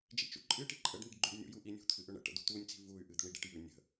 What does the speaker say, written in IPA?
d͡ʒ ḭ t͡ʃ ṵ ǃʼ ɨ ʈ i ǃʼ ə ɖ n i̤ ɖ ɡ͡ǃ ʉ ɖ nʲ ṵ j u ʔ i nʲ ṳ t̪ʰ ɨ ʔ ʏ ɳ ə̰ ʈ ə̰ d̪ ṳ t̪ u nʲ t͡s i̤ v u y̯ ʔ ɨ d̪ ə̤ ɳ i ɖ i̤ ʈ j ʉ nʲ ə̤

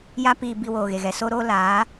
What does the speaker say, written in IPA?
j a˦ p iː˧ b i˧ w oː˨ ɣ e˨ ɣ ɛ˨ s o˦ ɾ oː˦ l aː˨˦

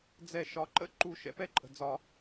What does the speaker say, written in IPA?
d͡z ɛ˨˩˦ ʃ ɒ˩˥ ǃ ə̰˥˧ ǃ u˨˩˦ ʃ ɛ̰˩˥ p ɛ˥˧ ǃʼ ə̤˩ d͡z ɒ˨˩˦

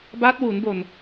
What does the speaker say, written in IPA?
b a˦˥ t̚ w u˩˦ n b o˨˩ n

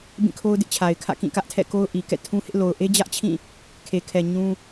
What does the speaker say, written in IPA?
b ĩ˦˨ kʰ o˦ ʊ̯ d ɪ˦ ʔ t͡ɕʰ a˨ ɪ̯ kʰ ä̰˦˨ k ĩ˦˨ k ä˦ ʔ tʰ ɛ̰˦˨ k o˦ ʊ̯ ʔ i˨ k ɛ̰˦˨ tʰ ũ˦ h ɪ˦ ʔ l o˨ ʊ̯ ʔ e˦ d͡ʑ ä˦ ʔ t͡ɕʰ ĩ˦˨ | kʰ e˨ kʰ ɛ˨ ɲ ũ˦

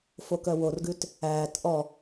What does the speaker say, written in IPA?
f o k œ w o r ɡ ʉ t | æː t ʔ ɔ

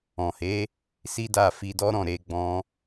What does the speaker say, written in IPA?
ɔ̃˨ h e˨˦ | s i˦ d a˦˨ f i˧ d ɔ˦ ɾ ɔ̃˦˨ ɾ e˧ ɡ͡b ɔ̃˧

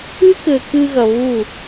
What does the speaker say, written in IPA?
ɨ˦ k ɘ˨ k ɨ˧ ɣ ɐ˨ β u˦˨

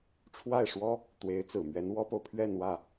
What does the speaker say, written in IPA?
ʈ͡ʂʰ w a˥˩ ɪ̯ ʂ w ɔ˥ | t̪ w e˧˥ ɪ̯ t͡s ɹ̩˨˩ m ɥ ɛ˧˥ n w ɔ˥ p o˨ ʊ̯ pʰ ɥ ɛ˥˧ n w ä˥˩

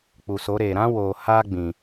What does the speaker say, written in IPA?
k͡p u˨ s o˨˦ ɾ eː˨ ɾ ã˦ w oː˨ h aː˦ ɡ͡b ĩ˨

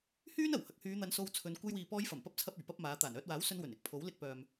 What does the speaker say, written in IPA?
h yː˥ n ɐ˨˩ w h ɐ˨ k̚ h yː˨˧ n̪ ɐ˨˧ n s o˧ w t͡sʰ ɵ˨˧ n kʷ ɐ˧ j w iː˨ p ɔː˧ j f ɐ˨˩ m p ɐ˧ p̚ t͡sʰ ɐ˧ p̚ ɵ˨˩ ɥ p ɐ˥ p̚ m aː˨˧ t̪ aː˨˩ n œː˧ t̚ w aː˨˥ w s ɵ˧ n w ɵ˨˩ n ɪ˧ k̚ pʰ o˨˥ w l ɪ˧ k̚ p œː˨ m

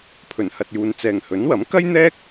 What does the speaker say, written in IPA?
pʰ ɵ˨˩ n h ɐ˨ t̚ j uː˨ n t͡s ɛː˨ ŋ h ɵ˨˥ n w ɐ˨˥ m k ɐ˥ j n̪ ɛː˥ k̚

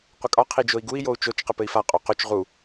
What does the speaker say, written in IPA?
qʷ ɪ kʼ ɒ qʰ i d͡ʒ o i̯ ɡ u i̯ j o u̯ t͡ʃ o t͡ʃ q ɪ p ɘ i̯ f a qʼ o q o t͡ʃ ʁ u

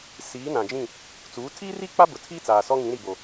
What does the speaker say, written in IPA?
s iː˨˦ n ã˨ d͡ʒ ĩ˦˨ | t͡s uː˨˦ tʰ i˦ r i˦ k͡p a˦ b ʊ˨ tʰ iː˦ t͡s aː˨ s ɔ˦ ŋ ĩ˨˦ ɾ i˨ b o˨

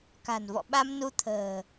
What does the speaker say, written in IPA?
k a̤˨˩ n v ɔ̰˧˨ ɓ a˧ m n u˧ t̪ʰ ə̤ː˨˩

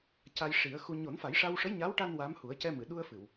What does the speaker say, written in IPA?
c a˧ j ʂ i˨˩˦ ə̯ x u˧ ɲ o˨˩˦ n f a˨˩˦ j ʂ a˧ w ʂ ə˧˥ j ɲ a˧˥ w ʈ a˧ n w a˧˥ m h u˨˩˦ ə̯ c ɛ˧ m ɨ˨˩˨ ɗ u˧ ə̯ f ɨ˨˩˨ w

